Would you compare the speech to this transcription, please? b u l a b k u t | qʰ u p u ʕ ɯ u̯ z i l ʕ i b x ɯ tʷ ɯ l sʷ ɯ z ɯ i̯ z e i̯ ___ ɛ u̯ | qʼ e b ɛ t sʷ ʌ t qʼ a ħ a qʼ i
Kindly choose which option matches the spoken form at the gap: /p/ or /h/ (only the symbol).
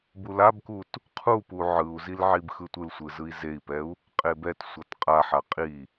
p